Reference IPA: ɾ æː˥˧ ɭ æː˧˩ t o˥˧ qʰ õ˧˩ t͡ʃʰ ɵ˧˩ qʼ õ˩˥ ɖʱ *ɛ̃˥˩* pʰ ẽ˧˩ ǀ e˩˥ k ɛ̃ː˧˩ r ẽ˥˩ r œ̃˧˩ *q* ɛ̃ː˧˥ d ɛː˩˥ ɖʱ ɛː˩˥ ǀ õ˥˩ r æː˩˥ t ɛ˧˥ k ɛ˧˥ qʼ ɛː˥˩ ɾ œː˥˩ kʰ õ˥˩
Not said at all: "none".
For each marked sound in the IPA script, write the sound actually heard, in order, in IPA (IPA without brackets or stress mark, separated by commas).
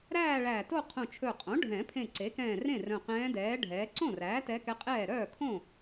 ɛ̃˨˩˦, q